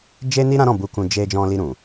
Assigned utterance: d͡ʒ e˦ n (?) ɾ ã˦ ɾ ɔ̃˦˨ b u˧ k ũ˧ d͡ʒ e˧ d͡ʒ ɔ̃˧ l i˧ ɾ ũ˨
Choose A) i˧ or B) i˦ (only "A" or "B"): B